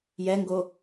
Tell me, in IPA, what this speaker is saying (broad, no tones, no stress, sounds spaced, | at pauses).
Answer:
j ɛ ŋ ɡ o